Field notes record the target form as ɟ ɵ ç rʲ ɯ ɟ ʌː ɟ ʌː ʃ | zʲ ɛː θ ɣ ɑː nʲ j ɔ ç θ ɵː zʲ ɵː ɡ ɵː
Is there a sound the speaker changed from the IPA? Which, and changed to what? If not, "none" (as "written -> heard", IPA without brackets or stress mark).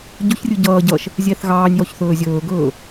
none